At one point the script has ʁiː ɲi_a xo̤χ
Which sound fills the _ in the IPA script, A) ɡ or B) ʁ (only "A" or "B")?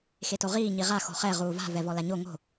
B